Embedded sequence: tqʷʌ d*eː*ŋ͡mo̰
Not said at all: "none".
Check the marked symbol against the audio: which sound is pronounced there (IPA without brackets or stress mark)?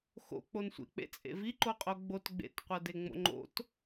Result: e